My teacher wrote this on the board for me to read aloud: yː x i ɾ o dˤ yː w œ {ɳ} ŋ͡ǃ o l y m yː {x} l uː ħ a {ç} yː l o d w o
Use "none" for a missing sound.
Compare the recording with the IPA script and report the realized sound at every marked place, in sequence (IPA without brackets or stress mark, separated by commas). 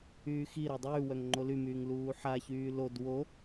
ŋ, ŋ, ç